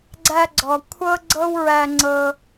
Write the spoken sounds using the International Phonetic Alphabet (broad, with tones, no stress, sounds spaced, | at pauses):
ɡ͡ǀ æ˧ ɡ͡ǀ ɔ˨ kʷʰ ɤ˦ ɡ͡ǀ ɤ˦ w ɹ æ˧ ŋ͡ǀ ɤ˧